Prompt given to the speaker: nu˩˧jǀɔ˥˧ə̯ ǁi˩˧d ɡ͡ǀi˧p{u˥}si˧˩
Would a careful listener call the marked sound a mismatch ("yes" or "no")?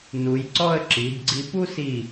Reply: no